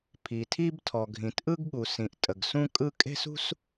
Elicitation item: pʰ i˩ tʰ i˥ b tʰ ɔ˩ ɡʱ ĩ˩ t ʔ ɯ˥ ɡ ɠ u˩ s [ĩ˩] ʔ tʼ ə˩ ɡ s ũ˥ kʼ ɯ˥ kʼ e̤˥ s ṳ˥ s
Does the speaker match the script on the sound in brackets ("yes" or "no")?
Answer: yes